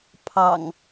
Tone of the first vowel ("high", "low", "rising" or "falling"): low